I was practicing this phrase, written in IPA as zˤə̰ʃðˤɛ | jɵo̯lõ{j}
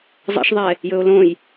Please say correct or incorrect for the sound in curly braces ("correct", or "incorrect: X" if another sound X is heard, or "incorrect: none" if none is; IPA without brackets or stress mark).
correct